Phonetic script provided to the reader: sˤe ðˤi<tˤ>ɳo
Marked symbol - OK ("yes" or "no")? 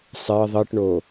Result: no